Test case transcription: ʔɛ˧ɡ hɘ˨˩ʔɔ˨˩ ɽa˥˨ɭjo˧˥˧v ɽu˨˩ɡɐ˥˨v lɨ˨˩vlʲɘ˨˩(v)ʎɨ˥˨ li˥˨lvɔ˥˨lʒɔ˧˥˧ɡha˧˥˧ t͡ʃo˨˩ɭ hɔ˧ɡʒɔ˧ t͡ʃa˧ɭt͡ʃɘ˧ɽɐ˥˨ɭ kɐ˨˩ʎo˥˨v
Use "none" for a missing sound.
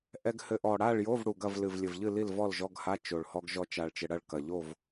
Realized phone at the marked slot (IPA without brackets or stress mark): v